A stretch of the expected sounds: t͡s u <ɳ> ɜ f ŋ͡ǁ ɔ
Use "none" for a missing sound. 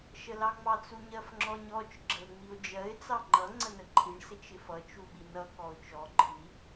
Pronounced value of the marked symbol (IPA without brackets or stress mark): ɲ